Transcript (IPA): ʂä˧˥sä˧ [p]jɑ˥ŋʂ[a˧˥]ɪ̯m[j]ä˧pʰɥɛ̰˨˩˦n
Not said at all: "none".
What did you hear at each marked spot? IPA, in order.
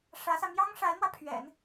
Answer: m, a˧˥, w

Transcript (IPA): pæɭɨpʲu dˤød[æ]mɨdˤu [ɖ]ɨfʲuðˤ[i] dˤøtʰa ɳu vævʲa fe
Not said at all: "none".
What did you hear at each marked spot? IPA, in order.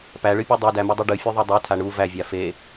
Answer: æ, ɖ, e

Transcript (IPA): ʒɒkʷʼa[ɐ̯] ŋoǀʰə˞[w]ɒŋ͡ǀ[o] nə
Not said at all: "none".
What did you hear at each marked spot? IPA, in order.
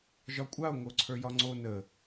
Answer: o̯, j, o

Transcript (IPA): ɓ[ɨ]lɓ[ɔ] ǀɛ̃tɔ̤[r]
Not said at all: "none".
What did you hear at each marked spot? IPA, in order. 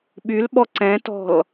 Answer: y, ɔ, l

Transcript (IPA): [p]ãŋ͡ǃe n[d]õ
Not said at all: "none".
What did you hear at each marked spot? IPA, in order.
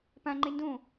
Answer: p, d

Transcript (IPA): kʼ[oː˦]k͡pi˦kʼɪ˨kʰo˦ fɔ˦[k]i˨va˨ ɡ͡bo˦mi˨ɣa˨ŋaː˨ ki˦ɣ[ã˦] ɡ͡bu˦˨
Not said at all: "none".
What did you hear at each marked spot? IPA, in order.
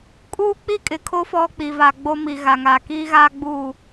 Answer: uː˦, k͡p, a˦

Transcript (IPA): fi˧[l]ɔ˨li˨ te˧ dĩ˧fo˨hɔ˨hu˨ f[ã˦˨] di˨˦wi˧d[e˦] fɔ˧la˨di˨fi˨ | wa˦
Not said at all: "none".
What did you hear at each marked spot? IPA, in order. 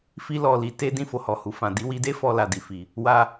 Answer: l, ã˨, e˦

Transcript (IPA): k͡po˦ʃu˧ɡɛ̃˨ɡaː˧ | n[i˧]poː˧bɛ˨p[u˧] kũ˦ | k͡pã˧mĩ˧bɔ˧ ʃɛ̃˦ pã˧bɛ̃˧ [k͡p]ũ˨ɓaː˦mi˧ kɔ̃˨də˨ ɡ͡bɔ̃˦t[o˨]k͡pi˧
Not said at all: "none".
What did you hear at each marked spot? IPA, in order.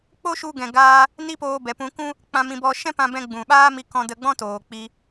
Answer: i˦, ũ˧, ɡ͡b, oː˨

